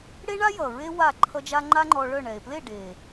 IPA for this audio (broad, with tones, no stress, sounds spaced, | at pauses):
ɽ e˦ ɳ a˦ j ʌ˨ ɹ e˦ w a˦˨ ǃʰ ʌ˦ d͡ʒ a˦ ŋ͡ǃ a˦ ŋ͡ǃ ɔ˧ ɭ œ˦˨ ɳ ɛ˨ e̯ p l e˦˨ ɖ e˨